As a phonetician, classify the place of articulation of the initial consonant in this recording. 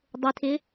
alveolar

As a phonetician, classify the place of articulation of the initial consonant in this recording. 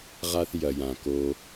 uvular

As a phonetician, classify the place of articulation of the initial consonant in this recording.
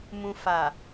labial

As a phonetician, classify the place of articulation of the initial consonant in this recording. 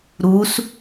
alveolar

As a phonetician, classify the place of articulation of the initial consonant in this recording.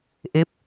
glottal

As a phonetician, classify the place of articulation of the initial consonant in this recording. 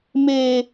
labial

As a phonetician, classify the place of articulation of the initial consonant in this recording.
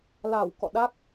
alveolar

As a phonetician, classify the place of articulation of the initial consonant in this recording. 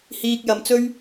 glottal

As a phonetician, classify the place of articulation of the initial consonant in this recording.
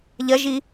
palatal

